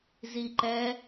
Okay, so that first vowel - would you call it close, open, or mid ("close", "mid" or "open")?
close